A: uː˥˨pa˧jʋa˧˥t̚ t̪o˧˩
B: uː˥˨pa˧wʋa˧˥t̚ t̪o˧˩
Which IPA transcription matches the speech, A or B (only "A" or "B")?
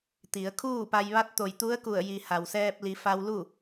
A